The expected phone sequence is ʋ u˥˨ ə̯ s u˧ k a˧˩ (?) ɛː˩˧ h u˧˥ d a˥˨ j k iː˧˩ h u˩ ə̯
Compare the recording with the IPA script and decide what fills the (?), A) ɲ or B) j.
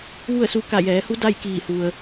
B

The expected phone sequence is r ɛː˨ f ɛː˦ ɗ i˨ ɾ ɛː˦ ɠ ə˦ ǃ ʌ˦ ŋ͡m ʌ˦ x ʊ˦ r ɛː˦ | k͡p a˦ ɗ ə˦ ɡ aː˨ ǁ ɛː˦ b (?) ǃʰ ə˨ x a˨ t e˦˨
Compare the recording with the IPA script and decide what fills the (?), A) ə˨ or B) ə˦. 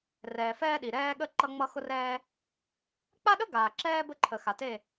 B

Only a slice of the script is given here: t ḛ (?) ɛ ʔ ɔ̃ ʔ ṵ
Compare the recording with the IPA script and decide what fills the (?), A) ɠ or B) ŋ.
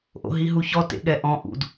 A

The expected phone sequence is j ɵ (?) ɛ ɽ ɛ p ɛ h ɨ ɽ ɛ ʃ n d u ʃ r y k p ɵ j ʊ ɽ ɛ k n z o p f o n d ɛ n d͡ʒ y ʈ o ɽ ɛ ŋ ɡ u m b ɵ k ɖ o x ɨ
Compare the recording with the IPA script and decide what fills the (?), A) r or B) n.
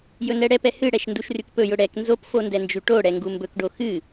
B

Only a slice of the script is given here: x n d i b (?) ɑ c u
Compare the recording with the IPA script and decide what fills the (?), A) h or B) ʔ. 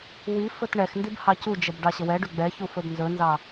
A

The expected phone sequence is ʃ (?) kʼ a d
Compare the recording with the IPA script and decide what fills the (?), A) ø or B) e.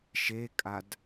B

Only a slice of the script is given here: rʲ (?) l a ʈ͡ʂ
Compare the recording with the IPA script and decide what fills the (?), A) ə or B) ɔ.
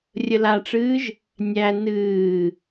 A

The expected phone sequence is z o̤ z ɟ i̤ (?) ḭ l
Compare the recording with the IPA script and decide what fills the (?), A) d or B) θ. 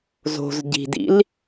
A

